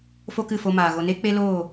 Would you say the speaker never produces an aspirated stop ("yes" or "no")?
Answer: yes